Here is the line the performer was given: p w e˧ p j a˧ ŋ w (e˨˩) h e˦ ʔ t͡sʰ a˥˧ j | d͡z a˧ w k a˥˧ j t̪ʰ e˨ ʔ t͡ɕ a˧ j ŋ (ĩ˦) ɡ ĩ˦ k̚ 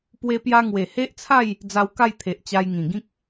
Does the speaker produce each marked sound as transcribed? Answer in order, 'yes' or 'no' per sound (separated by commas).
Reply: yes, no